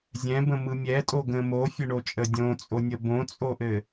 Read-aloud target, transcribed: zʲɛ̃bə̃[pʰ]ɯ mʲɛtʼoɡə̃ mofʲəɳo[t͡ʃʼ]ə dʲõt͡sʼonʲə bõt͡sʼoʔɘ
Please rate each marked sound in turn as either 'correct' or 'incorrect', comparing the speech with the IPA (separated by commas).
incorrect, correct